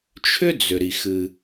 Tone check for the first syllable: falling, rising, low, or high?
high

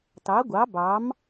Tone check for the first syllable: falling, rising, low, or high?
rising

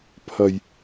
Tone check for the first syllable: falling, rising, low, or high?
low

